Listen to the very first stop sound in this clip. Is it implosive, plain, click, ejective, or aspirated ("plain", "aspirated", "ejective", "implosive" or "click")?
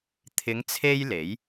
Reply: aspirated